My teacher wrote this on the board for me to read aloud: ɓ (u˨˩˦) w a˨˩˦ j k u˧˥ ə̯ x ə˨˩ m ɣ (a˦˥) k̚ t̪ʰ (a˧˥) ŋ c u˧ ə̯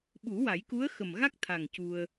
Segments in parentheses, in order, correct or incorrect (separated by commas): correct, correct, incorrect